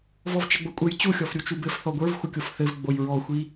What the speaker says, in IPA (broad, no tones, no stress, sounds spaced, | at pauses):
v ɔ v t͡ʃ ə ɡ͡b o kʷʼ ə j t͡ɕ u xʲ ɔ f ɾʲ u t͡ʃ u b ɘ f θ ɔ ɡʷ ə˞ v xʷ ə kʲ o f θ ɘ v ɡ͡b o j ɹ ɔ xʷ i